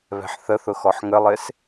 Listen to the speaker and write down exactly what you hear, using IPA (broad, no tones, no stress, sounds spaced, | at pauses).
β ɛ̤ ħ θ ə θ ʊ x ɔ ħ ŋ ə lˠ ɪ s